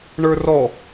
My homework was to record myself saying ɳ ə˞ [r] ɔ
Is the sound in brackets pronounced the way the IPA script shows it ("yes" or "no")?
yes